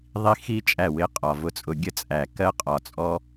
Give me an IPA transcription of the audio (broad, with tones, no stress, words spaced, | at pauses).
ðˤi˦ xi˦ t͡ʃʼæ˦˨wɪ˦˨ qʼɒ˨vʊ˧t͡sʼʊ˧ ɡʲə˦t͡sʼæ˨ kɜ˦qʼɒ˨t͡sʼɔ˦